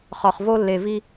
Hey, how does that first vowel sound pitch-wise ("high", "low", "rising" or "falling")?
low